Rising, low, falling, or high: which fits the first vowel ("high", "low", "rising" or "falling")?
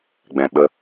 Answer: low